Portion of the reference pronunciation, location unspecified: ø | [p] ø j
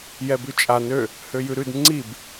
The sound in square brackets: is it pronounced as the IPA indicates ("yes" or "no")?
no